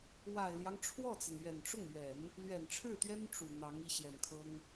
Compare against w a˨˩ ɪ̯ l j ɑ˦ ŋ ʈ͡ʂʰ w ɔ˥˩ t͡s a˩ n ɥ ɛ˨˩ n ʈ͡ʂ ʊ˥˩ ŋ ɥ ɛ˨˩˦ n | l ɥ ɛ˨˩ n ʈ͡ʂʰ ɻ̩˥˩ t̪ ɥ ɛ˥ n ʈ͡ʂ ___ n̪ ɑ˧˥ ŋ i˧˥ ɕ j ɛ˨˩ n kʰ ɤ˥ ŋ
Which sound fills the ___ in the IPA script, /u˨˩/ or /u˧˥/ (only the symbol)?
u˨˩